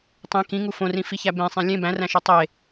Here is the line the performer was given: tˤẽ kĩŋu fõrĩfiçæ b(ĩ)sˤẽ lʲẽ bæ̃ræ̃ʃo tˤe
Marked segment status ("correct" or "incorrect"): incorrect